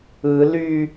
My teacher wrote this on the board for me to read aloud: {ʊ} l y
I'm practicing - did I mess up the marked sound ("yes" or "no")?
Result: yes